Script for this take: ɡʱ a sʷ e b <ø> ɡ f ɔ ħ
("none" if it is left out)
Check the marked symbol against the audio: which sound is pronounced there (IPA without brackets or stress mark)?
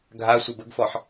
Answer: ə